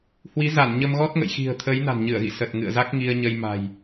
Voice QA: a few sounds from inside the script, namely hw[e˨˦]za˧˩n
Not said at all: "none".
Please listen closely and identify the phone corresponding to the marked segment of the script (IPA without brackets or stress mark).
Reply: i˨˦